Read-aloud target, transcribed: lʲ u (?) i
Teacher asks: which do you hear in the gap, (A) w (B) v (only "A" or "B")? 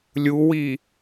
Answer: A